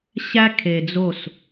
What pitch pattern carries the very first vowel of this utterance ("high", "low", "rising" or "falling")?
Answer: high